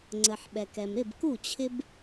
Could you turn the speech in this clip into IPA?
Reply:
ŋ͡ǀ ə˩ ħ ɓ ɛ˩ k ɛ˩ m ɾ ɪ˥˩ b k u˥˩ t͡ɕʰ ɪ˦ b

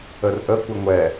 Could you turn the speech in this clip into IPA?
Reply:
ə r ʔ ə kʷ ə ŋʷ ɛ

